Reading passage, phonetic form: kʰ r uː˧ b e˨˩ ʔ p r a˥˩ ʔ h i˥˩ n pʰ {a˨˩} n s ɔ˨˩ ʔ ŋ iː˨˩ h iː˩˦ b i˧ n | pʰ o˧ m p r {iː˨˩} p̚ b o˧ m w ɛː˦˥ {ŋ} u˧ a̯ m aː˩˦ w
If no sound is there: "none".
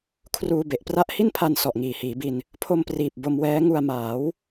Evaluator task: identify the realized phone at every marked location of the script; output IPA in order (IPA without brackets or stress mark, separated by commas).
a˧, iː˨˩, ŋ